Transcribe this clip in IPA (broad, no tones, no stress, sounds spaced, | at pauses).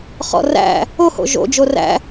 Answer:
χ ɔ̰ r æ̰ | o h o̰ ʒ o̰ d͡ʒ o r æ̰